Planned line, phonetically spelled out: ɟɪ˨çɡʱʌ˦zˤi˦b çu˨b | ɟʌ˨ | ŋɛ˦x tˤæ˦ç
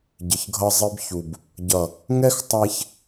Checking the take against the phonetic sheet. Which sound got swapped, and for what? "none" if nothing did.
none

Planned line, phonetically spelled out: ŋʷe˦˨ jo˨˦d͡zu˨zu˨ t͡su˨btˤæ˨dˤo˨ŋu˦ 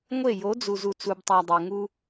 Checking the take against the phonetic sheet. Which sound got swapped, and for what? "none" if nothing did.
none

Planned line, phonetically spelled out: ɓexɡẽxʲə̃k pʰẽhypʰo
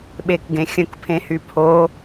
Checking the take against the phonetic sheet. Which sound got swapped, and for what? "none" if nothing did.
x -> k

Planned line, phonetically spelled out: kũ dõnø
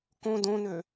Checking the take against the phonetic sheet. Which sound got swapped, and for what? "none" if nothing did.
ũ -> õ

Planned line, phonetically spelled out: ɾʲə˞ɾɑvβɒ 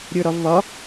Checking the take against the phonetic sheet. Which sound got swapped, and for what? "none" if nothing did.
ɑ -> ɒ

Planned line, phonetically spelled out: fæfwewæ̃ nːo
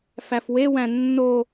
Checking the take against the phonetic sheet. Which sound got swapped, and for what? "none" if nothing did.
none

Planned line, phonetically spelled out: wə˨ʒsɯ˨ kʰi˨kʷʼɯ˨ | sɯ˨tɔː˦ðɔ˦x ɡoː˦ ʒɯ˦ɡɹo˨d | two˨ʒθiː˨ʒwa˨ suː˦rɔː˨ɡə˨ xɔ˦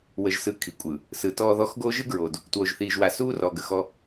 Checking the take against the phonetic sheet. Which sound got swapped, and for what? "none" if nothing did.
none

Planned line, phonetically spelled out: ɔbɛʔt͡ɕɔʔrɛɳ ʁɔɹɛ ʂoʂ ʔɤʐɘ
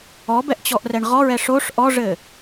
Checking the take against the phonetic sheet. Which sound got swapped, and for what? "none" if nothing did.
ɤ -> ɔ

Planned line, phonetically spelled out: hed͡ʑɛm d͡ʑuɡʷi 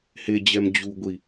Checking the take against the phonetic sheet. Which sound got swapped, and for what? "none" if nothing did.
none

